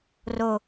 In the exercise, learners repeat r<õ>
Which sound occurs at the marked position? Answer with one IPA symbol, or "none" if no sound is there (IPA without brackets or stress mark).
o